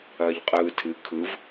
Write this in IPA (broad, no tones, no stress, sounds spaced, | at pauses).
ɐː ʎ qʼ ɯː tʰ ɨ kʰ ɯ v